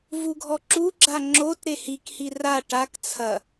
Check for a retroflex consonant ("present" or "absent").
present